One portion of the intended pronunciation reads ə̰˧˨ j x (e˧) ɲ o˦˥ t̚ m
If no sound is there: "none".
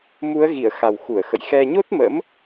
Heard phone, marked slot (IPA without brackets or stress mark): ɛ˧